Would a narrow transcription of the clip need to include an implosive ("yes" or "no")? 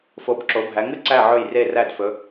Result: no